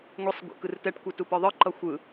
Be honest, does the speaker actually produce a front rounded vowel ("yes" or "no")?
no